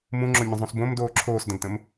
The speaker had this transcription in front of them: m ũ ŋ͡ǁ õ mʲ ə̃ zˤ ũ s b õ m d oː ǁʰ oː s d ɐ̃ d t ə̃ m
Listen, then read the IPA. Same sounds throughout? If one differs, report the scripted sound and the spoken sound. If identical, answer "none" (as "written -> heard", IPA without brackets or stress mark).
none